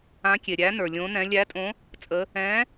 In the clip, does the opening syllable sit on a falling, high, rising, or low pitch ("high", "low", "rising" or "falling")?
rising